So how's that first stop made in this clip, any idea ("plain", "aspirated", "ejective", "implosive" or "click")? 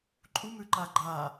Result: click